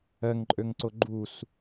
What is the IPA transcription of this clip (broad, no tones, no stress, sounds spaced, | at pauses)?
ɜ ŋ ǃʼ ø ŋ ǀ o ɡ͡ǃ u s